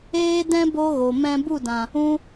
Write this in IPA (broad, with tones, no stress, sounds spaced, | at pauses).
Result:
eː˦ d ɛ̃˦ b o˦ ɣ o˨ m ɛ̃˧ b u˦˨ d ã˨ | ũ˦